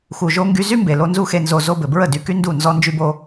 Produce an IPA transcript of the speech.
x u˨ ʒ o˧ ŋ ɡ y˧ z y˦ m b e˨ l o˧ n z u˦ x e˧ n z o˧ z o˧ b ɘ˨ b ɹ ə˦˨ d y˧ k y˦ n d u˦˨ n z ɔ˦ n d͡ʒ y˧ b o˧

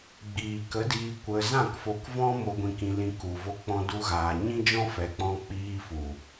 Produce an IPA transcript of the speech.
ɡ͡b iː˨ k ə˨˦ d iː˧ kʷ ə˧ z ã˦˨ k f o˧ k v ɔ̃˦ m o˧ ɡʷ ĩ˧ k ĩ˧ l ĩ˧ k u˨ v o˧ k͡p ɔ̃˧ d u˧ ɣ aː˨ ɲ ĩ˦ d͡ʒ ɔ̃˦ f ɛ˨ k͡p ɔ̃˧ k͡p iː˧ f u˨

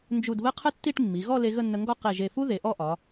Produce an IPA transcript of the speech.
n d͡ʒ u˧˩ d β ə˥˧ qʰ ə˥ tː i˥˧ ʈ mː i˩˧ ɣ ɔ˥˧ l e˧ ɣ ə˥˧ nː ə˧ ŋ ɡ ɔ˥˧ q e˧˩ ʒ e˧˩ f u˥ ð e˩˧ ʔ ɔ˥˧ ʔ ɒ˩˧

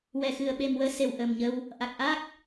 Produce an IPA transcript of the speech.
w ɛ˨˩ x ɨ˨˩ ə̯ ɓ e˨˩ m w əː˧˥ s e˨˩ w ʔ ə˨˩ m ɲ ə˧ w | ʔ a˨˩ k̚ ʔ a˦˥ k̚

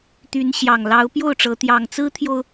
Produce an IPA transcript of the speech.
t̪ y˨˦ n ɕ j ɑ˨˩ ŋ l ɑ˨˦ ʊ̯ p j o˥˨ ʊ̯ ʈ͡ʂ ɤ˨˦ t̪ j ɑ˨˩ ŋ t͡s ɹ̩˦ t̪ʰ j o˨ ʊ̯

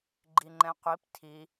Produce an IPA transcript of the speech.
ɡ͡ǃ i ŋ͡ǃ ɛ̃ qʷ i p tʰ i

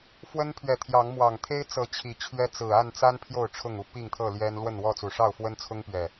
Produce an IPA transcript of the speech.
f w ə˦ n pʰ ɥ ɛ˨ t̪ʰ j ɑ˨˦ ŋ m w ɑ˨˩ ŋ t̪ʰ e˦ ɪ̯ t͡s ɤ˨˦ t͡ɕʰ i˨˦ t͡ɕʰ ɥ ɛ˦ t͡s ɹ̩˨˩ a˥˨ n t͡s a˦ n pʰ j o˥˨ ʊ̯ ʈ͡ʂʰ ʊ˥˨ ŋ u˥˨ p i˥˨ ŋ t̪ʰ ɤ˥˨ l j ɛ˦ n l w ə˥˨ n w ɔ˥˨ t͡s u˨˩ ʂ ɑ˥˨ ʊ̯ f w ə˦ n t͡sʰ ʊ˦ ŋ p ɥ ɛ˨˩

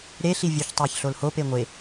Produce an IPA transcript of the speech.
ɾ e ɬ i vʲ u ç tˤ æ ç ɬ o l h o p e ŋʷ e

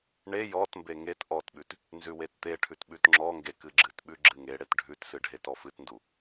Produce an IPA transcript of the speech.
ɳ e j ɔ t m b e ŋ e t ʔ ɔ t ɓ ʉ t | n z ʉ w e t t̪ e ʈʰ ʉ t ɓ ʉ t ŋ͡ǁ ɔ ŋ ɡ e k ɨ ɡ͡ǁ ɨ t ɓ ʉ ɡ͡ǁ ɨ ŋ e ɽ e t ɖʱ ʉ t s ɨ ɖʱ e t ɔ f ɨ t n d u

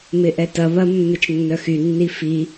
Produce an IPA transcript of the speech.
m ɪ ʔ ɛ t ɐ β ɐ mː ɪ t͡ʃ nː œ x y nː i f i

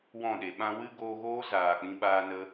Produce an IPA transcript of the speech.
w ɔ̃˦˨ ɗ e˨ ɓ ã˧ w ɨ˦ ɡ oː˧ ɣ oː˦ z aː˨ k͡p ĩ˧ ɓ aː˧ n ə˦

